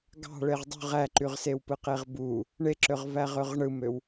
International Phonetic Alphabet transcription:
ɡ ɑ̤ ɭ e ʁ dˤ ṳ ʁ æ ǃ y ʁ s e w p ɯ q e ʁ b u | ɳ e ǁ ø ʁ v æ ʁ ø ʁ ɳ ɯ m ø w

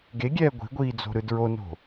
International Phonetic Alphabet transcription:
ɡ e ɡʲ ɛː ɡʷ i̤ ɡʷ iː d͡z o̤ ɾ ɯ d ɹ o n o̤

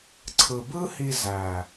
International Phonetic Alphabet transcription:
ǀʰ ɯ˨ b ɯ˦ h i˧ z æ˨

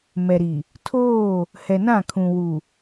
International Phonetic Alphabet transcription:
m ɛ˨ ɾ i˨ | tʰ oː˦˨ | h ɛ˨ n ã˦˨ kʰ ũ˨ w u˨

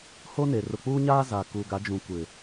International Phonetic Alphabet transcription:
h o˦ n e˨ r ʊ˨ k͡p uː˦ ɲ aː˦ z a˨ k uː˨ ɡ a˨˦ d͡ʒ ũ˨ kʷ ɪ˨

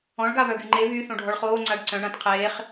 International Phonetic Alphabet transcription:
ɔ̃ ɭ ɡ a β œ ɡ y ŋ͡ǃ e β y θ õ ɖʱ ɔ ɭ χ oː ŋ͡ǀ a ɖ ǀ œ̃ ɳ ã t qʰ eː χ

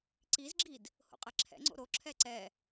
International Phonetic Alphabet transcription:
ǀ i z ɡ͡ǁ i d | h o̰ qʼ ɛ ǁʰ ɛ̰ ŋ͡ǀ o̰ ɾ o ǁʰ ɛ ǀ ɛ

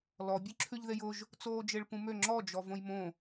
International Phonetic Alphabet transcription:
l ɔ bʲ ʉ ǁʰ ʉ ʎ ð e j ʊ ʒ | t͡s oː d͡ʒ e ɭ p ũ m ø ŋ͡ǁ ɔ d͡ʒ ɔ v õ j m õ

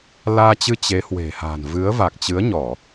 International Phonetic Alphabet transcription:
l aː˧ t͡ɕ ɨ˧ t͡ɕ e˨˦ h w e̤˨˩ h a̤ː˨˩ n v ɨ˨˦ ə̯ v a˨˩ k̚ t͡ɕ ɨ˨˦ ə̯ ɲ ɔ˧˩˨

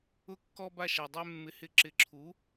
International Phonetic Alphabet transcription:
ʊ˥ kː ɔ˥ b a˥˩ ʃ a˩ dˤ ɛ˧ mː ɪ˩˥ h ɪ˩˥ ǁ ɪ˩˥ ǁʰ u˩˥

